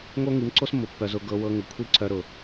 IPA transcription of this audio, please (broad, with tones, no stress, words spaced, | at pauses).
ŋo˦ŋi˨˦mǀo˦smːʊ˨ pːœ˧zʊ˧ ɡɤ˧wɤ˧ ŋʊ˨kʷʰi˦ǀœ˧ ɾʊ˨